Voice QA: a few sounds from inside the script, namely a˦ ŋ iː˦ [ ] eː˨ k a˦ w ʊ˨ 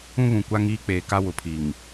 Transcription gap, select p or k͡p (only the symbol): k͡p